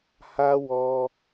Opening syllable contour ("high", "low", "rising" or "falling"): high